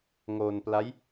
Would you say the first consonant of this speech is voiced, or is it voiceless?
voiced